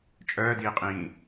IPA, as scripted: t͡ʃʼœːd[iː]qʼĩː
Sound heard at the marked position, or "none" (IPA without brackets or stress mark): iː